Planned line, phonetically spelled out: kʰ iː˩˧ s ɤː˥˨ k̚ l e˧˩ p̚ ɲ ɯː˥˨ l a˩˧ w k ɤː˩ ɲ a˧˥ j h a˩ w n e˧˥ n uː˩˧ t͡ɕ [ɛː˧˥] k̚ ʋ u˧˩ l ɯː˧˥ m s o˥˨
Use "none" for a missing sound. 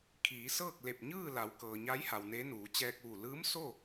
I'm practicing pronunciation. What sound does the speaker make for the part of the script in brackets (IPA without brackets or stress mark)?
ɛː˧